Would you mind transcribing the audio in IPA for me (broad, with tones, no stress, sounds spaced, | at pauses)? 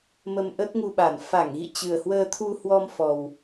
m ə˧ m ʔ ə˦˥ t̚ ŋ u˧ ɓ a˧˩ n f a˧˩ ŋ ɣ ḭ˧˨ t͡ɕ ɨ˨˩ ə̯ h w əː˧ t̪ʰ u˧ h w ɔ˧ m f ɔ˨˩ w